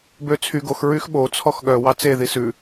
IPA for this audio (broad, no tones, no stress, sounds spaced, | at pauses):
b ø t͡sʰ y ɡ o x ɹ y x ɓ o t͡sʰ ɔ x ɠ œ w ɑ t͡s e ð i s ʉ